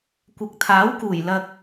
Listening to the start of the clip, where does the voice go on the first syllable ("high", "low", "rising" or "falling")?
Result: low